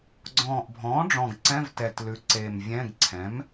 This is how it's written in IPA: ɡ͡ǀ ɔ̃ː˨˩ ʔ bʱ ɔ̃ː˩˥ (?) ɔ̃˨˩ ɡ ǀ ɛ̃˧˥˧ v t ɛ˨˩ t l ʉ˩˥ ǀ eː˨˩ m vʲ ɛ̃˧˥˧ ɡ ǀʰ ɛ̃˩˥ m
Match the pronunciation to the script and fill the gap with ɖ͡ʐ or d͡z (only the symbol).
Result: ɖ͡ʐ